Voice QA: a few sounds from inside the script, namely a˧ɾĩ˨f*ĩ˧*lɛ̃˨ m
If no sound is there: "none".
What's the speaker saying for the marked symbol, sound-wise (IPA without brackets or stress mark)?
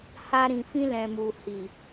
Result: ĩ˧